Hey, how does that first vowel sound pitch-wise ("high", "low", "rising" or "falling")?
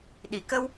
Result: low